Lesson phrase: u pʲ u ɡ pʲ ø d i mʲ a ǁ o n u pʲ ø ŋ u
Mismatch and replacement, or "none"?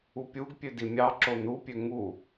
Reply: a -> ɑ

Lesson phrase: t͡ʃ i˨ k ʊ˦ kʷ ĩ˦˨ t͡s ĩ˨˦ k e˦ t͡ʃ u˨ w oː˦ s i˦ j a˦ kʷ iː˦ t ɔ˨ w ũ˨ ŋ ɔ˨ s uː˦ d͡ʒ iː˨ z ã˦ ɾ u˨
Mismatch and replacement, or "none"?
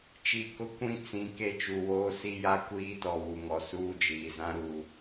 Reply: ũ˨ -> u˨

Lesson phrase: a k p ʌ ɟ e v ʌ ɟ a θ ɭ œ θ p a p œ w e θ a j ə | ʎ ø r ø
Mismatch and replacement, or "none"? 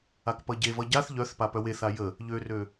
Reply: ɭ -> ʎ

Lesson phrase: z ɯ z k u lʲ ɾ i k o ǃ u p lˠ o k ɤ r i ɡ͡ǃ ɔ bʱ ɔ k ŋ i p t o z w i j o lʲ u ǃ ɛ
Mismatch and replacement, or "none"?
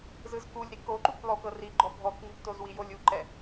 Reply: none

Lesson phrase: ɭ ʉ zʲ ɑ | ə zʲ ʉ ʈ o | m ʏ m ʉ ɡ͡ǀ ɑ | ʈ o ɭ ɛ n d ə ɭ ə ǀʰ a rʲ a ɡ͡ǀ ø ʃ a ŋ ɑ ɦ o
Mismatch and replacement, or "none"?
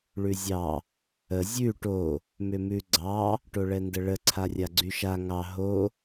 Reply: ø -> y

